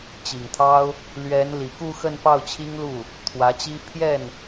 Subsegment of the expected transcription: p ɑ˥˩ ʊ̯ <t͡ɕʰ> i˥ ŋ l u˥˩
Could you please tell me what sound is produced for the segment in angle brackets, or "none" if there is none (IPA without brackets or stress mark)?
t͡ɕʰ